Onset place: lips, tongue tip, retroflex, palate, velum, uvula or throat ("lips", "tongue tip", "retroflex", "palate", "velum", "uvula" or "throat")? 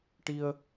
retroflex